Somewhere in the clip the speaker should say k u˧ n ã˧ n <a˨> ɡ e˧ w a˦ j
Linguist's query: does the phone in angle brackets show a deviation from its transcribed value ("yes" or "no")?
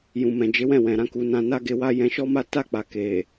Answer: yes